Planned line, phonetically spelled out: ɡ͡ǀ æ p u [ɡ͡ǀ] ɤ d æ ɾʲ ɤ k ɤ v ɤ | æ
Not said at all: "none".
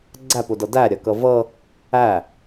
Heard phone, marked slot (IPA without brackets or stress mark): d